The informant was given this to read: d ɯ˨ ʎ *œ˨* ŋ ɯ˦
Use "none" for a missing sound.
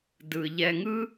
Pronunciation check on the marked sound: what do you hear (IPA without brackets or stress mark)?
ɛ˨